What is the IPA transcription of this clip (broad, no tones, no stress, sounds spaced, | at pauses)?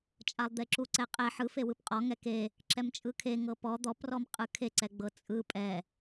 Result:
t͡ʃʼ a lˠ d̪ e ǁ u ǀ ɛ qʼ ɛ ħ ɯ f e w ɯ p qʼ ɔ ŋ ɛ k e | ǁ ɛ m t͡ʃʼ ɯ kʰ e ŋ ɤ p ɔ d̪ ɔ p r ɔ m qʼ ɯ kʰ e ǀ ɛ ɡ͡b ɤ t͡sʼ ɯ pʼ ɛ